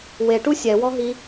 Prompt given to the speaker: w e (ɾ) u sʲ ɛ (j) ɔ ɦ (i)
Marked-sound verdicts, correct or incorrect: incorrect: ʈ, incorrect: w, correct

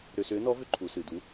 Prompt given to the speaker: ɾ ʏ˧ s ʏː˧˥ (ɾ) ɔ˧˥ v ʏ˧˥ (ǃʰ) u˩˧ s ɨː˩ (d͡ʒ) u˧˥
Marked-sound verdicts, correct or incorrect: incorrect: n, correct, incorrect: d

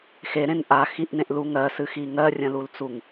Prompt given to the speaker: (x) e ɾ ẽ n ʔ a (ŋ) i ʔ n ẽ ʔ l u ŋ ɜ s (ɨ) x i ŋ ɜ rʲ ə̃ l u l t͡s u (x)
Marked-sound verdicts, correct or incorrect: correct, incorrect: x, correct, incorrect: ŋ

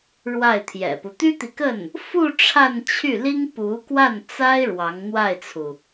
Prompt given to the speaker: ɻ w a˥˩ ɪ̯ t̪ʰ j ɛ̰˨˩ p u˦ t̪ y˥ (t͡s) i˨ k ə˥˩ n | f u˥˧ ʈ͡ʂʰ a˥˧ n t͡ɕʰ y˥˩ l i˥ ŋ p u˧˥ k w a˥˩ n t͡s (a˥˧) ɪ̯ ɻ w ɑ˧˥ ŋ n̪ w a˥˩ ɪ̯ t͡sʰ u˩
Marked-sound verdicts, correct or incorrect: incorrect: t̪, incorrect: a˥

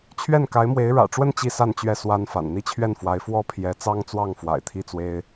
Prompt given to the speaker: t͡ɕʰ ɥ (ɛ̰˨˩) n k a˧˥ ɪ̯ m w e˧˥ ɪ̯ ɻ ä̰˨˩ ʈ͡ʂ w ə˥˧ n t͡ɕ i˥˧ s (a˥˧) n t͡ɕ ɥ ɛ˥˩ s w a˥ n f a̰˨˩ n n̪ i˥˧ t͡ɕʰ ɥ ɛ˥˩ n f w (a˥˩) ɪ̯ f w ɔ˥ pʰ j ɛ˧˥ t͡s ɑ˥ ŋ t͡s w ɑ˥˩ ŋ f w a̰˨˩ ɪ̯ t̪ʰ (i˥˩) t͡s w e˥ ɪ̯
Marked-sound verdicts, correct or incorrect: incorrect: ɛ˥˩, correct, incorrect: a˧˥, correct

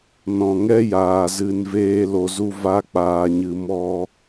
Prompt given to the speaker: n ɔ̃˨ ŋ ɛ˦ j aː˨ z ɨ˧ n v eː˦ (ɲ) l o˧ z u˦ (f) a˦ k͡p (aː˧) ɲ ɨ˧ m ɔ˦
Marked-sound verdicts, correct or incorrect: incorrect: none, incorrect: v, correct

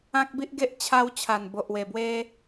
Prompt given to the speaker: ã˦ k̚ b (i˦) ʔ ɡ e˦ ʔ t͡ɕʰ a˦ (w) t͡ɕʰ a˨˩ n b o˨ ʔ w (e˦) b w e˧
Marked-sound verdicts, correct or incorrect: correct, correct, incorrect: e˨˩

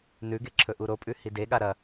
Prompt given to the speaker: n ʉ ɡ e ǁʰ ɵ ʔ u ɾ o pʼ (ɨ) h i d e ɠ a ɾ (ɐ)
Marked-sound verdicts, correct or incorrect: incorrect: ʉ, correct

